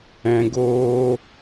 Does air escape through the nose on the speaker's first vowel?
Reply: yes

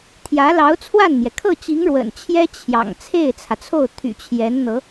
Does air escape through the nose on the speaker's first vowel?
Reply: no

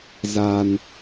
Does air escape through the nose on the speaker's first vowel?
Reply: no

